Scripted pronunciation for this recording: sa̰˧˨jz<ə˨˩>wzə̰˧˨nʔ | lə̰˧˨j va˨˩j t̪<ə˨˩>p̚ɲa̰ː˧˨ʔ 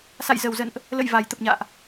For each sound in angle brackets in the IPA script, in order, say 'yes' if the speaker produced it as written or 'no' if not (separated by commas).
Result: yes, yes